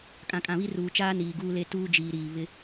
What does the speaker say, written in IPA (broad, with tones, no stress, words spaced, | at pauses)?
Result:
kʼã˨kʼã˨βi˦ ruː˨t͡ʃaː˦ niː˨ɡuː˦le˦ tuː˦d͡ʒiː˨ɾiː˨ βɪ˦